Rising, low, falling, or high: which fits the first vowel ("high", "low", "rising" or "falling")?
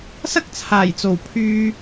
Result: high